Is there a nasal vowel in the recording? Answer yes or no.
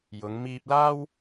no